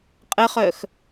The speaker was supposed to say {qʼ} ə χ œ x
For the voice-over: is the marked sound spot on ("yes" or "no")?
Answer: yes